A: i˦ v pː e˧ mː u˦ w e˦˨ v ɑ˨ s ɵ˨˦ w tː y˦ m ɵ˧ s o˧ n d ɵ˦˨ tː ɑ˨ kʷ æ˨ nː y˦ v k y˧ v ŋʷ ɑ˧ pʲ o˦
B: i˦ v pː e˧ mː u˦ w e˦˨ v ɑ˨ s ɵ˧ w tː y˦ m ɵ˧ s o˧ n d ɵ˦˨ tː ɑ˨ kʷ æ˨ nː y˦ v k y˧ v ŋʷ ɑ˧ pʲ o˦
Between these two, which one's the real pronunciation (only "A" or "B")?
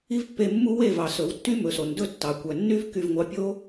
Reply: A